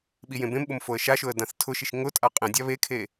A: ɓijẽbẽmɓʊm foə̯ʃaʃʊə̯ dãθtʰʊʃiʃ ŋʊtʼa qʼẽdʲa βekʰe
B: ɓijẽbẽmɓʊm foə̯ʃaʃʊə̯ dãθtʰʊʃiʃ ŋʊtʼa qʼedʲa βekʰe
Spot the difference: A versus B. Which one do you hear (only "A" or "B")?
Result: A